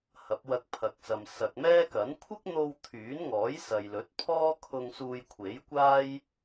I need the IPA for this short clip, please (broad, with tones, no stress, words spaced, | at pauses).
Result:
hɐ˨˥p̚wɐ˧k̚pʰɐ˨k̚sɐ˨m sɐ˨k̚mɛː˥kɐ˨˥n kʷʰɪ˥k̚n̪o˧w t̪ʰyː˨˥nŋɔː˨˥j sɐ˨jlɵ˨˥t̚pʰɔː˥ kʰʊ˧ŋ suː˧jkʷʰe˨˥jkʷaː˥j